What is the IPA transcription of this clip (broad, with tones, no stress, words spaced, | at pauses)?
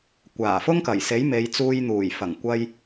kʷaː˨˩fʊ˥ŋkɐ˨˩jse˨˥j me˨˧jt͡suː˧jn̪uː˨˩j fɐ˨˩ŋkʷɐ˧j